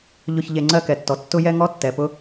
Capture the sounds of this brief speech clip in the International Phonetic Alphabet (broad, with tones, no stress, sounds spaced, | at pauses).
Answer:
ʎ ʊ˨ ç ʎ e˨ ŋ͡ǀ ɜ˦ k ɛ˨ tː ɔ˨ tː ʊ˦ j ɛ˦ ŋ ɔ˦ tː ɛ˨ p ʊ˦